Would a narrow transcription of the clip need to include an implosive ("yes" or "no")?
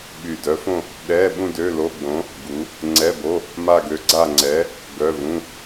yes